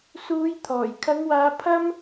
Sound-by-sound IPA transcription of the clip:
s uː˨˧ j t̪ʰ ɔː˨˩ j kʰ ɐ˨˧ ŋ w aː˨˧ pʰ ɐ˥ m

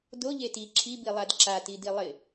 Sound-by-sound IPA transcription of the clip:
d o ʎ e t i ǁʰ i b i lˠ a d ǁ a t i d i lˠ ɪ

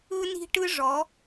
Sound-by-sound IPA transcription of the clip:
ɯ˥ n i̤˥ ʈ ɯ˥ ʐ ɔ˧˥

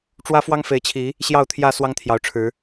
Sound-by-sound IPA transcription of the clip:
ʈ͡ʂ w ä˦ f w ɑ˦ ŋ f e˨˦ ɪ̯ t͡ɕʰ i˨˦ | ɕ j ɑ˥˨ ʊ̯ t̪ʰ j ä˥˨ s w ɑ˦ ŋ t̪ʰ j ɑ˨˦ ʊ̯ ʈ͡ʂʰ ɻ̩˨˦

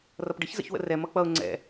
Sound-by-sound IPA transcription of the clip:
r ʌ p ɖ ə ç z ə̰ ç w ə̰ r ɛ m ʌ k͡p ʌ ʊ̯ ŋ͡ǀ ɛ̰

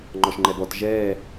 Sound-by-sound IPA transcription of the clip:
ŋ͡ǃ ɔ ʃ ŋ͡ǃ ɛ b ɔ t ʒ ɛː

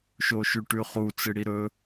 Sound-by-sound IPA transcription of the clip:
ʃ o ʃ ʉ ʈ ʉ χ u t͡s ɨ ɽ i ɾ ɵ

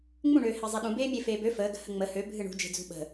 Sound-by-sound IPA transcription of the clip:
ŋ͡m ũ ɳ øː h e zˤ e ɗ ũ b eː mʲ e f eː b ø f əː ɡ ə̤ h ə ŋ͡m ə h ø bʱ ɨ ɳ ṳ d͡ʒ e̤ d͡z ṳ ɓ ə̤

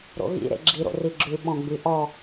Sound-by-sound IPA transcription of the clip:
ɾ o̰ ɣ ḭ ɾ ḛ ɡ͡ǁ i ɾ o̰ r i ɡ͡ǁ ʉ ɓ ɔ̃ ɡ͡b y ʔ ɔ

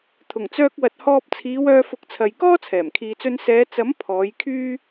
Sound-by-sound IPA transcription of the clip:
t̪ʰ ʊ˨˩ ŋ t͡s œː˧ k̚ w ɐ˨ t̚ h ɔː˧ p̚ t͡sʰ iː˨˧ w œː˧ f ʊ˨˥ k̚ t͡sʰ ɐ˨ j k ɔː˥ t͡sʰ ɛː˨˩ m kʰ iː˨ t͡s ɵ˧ n s ɛː˨˧ t͡s ɐ˨˥ m pʰ ɔː˨˧ j kʰ yː˥

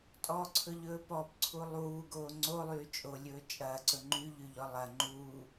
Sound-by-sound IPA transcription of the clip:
tʼ ɔ ǀʰ ɵ ʎ ɵː p ɔ p ǀʰ u lˠ uː ɡ oː ŋ͡ǀ o lˠ yː t͡ʃʼ o lʲ ɵː t͡ʃʼ ɐː ǀ ɵ ŋ͡ǃ y ʎ y ʎ ɔ lˠ ɐ ŋ͡ǃ uː

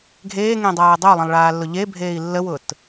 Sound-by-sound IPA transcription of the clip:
ɡʱ eː ŋ ẽ dˤ aː dˤ ɵ u̯ lˠ ə̃ lˠ ɭ aː lː ʊ ʎ e bʱ eː i̯ lː ə w ʊː t

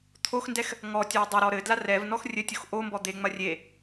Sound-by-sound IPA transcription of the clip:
t̪ʰ o x n d ɛ x | ŋ ɔ tʲ ɔ dˤ ɐ ɾ ɔ ɾ ɘ d l a r ɛ v n ɔ x rʲ ɘ tʲ o x ʔ o m b ɔ d̪ e ŋ͡m ɐ rʲ e

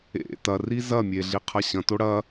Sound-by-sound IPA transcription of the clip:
ḛ t ɐ r i z ɐ mʲ e ɮ i qʰ ɐ ɕ ɐ̃ t o ɽ ɐ

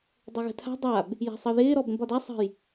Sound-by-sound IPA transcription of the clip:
dˤ ɤ ɣ ə̤ tʰ a̤ dˤ a b | j a̤ sˤ ɤ ð ɪː ɾ ɔ b ɾ ə̃ b ɒ d a sˤ ə̤ j

